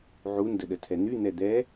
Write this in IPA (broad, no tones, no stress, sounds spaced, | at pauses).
ʕ u n d ə ɗ ə tʰ ɛ n̪ y n̪ ɛ d̪ ɛ